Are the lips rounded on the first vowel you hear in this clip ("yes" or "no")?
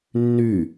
yes